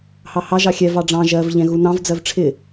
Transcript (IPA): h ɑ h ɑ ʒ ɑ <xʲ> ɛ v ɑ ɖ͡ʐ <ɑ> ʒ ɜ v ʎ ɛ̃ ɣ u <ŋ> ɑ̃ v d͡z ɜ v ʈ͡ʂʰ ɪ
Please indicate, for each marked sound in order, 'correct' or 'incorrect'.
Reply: correct, incorrect: ɑ̃, incorrect: n

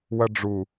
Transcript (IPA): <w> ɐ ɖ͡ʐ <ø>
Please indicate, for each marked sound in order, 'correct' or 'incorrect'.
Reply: correct, incorrect: u

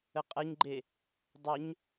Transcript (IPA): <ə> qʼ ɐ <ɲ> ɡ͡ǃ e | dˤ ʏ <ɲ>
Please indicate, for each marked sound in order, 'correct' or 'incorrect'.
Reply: correct, correct, correct

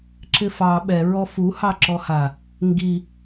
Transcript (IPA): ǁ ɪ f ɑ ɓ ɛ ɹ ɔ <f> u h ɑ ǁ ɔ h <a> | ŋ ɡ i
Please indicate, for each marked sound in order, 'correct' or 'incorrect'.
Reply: correct, correct

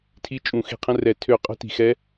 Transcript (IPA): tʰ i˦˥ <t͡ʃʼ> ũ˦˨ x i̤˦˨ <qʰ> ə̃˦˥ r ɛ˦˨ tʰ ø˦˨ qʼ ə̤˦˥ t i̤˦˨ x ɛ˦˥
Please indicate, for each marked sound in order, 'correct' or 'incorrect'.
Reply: correct, correct

